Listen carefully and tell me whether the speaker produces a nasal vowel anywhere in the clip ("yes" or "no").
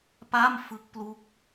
no